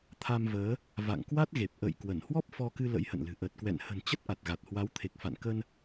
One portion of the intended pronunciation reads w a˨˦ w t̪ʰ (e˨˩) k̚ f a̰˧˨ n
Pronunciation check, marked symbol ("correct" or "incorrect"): correct